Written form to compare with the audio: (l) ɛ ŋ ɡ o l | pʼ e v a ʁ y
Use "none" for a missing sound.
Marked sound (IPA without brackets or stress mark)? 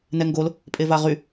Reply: n